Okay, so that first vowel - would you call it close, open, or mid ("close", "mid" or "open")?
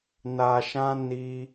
open